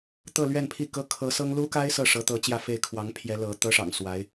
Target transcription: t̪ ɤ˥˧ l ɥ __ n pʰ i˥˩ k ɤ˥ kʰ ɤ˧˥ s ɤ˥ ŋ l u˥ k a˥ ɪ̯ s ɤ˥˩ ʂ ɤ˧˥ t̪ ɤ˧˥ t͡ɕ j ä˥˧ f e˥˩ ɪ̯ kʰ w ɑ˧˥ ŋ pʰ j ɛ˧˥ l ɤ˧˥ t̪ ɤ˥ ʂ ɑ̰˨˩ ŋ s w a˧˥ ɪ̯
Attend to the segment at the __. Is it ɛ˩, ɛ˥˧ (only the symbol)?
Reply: ɛ˥˧